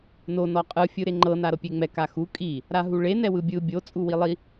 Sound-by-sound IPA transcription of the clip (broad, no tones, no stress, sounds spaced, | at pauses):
n o n ɔ qʼ ɯ fʲ ɯ ɾ e ŋ͡ǃ ɤ n a ɾ ɤ pʲ e ŋ͡m ɛ k a x u kʼ i | ɾ a ɦ u ɭ e n ɛ w ɯ bʲ ɯ bʲ o t͡sʼ u w i lˠ i